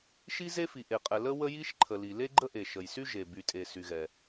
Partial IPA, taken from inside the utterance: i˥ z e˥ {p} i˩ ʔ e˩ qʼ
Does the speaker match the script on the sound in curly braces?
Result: no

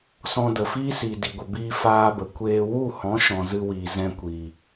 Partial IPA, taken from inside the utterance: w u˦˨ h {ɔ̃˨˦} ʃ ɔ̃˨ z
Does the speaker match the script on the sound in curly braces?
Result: yes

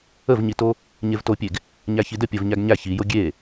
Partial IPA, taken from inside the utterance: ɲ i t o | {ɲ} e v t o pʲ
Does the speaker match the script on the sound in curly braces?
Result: yes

